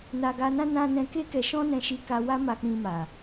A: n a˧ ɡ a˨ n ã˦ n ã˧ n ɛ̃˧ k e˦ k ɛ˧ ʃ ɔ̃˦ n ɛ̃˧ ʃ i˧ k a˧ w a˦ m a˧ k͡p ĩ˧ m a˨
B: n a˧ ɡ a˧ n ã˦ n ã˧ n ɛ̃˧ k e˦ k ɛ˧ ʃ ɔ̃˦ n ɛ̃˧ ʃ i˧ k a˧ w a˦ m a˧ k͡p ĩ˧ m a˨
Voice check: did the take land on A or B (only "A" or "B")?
B